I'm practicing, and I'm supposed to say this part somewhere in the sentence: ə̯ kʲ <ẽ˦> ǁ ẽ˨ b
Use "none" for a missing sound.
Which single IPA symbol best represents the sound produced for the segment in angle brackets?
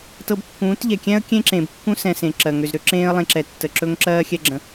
ẽ˦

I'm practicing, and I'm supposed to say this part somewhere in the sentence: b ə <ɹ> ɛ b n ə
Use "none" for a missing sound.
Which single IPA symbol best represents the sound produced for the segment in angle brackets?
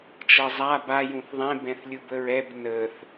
ɹ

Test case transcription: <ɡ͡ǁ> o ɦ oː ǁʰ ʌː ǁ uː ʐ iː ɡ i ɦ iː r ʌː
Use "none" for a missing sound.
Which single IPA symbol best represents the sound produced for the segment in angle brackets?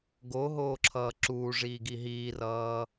ɡ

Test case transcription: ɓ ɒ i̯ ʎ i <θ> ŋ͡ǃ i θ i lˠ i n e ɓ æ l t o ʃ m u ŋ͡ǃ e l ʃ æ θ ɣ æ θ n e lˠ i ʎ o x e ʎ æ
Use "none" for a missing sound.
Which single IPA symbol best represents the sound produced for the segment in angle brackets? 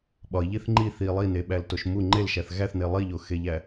θ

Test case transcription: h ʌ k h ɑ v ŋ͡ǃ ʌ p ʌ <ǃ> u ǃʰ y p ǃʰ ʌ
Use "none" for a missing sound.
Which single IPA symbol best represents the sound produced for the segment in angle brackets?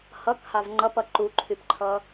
ǃ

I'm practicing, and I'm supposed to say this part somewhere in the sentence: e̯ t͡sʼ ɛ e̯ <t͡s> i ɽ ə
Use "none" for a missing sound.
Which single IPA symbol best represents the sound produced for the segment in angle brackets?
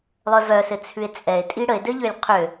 tʼ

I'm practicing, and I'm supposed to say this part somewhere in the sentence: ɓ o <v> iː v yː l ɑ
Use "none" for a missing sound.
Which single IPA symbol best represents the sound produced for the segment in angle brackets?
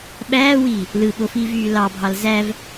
f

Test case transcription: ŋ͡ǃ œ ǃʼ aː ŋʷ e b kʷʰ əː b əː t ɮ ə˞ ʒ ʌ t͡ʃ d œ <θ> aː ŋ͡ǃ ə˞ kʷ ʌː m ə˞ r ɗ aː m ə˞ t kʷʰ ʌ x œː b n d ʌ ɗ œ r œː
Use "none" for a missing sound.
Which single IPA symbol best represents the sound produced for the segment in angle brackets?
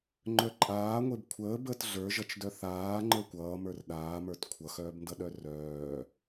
θ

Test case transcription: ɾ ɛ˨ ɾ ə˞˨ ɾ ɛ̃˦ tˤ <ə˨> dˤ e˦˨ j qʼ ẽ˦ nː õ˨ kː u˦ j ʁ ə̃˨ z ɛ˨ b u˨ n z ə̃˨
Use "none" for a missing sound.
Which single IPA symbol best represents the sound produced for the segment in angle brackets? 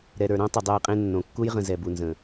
ə˨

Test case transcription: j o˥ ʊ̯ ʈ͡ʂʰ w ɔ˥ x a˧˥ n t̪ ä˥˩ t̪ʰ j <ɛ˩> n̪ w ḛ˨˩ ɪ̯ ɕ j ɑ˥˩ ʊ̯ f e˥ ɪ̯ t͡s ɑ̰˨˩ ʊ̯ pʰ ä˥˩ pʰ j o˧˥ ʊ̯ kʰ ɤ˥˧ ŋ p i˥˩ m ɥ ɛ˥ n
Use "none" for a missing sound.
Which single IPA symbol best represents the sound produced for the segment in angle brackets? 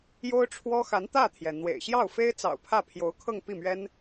ɛ˩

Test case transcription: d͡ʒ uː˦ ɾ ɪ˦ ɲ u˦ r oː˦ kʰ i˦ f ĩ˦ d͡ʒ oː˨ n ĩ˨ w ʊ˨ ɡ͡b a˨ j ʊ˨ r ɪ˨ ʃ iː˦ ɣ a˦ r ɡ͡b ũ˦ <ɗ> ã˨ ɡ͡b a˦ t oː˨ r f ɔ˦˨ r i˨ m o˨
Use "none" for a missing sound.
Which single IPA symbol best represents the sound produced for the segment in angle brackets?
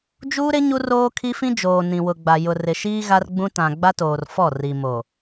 t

